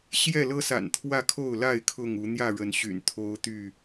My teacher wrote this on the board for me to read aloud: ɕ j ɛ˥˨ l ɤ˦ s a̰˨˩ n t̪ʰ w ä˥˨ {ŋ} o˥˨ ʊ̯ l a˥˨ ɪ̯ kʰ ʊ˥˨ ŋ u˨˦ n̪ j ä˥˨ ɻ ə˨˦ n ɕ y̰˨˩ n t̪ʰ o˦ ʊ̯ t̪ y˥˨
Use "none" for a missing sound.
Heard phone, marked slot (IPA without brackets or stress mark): kʰ